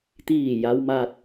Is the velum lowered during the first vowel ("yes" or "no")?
no